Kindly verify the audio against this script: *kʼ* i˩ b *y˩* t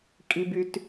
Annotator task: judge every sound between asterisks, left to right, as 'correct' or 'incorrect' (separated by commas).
correct, correct